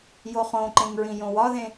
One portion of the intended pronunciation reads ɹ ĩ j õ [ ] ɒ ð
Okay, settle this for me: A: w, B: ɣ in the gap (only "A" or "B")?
A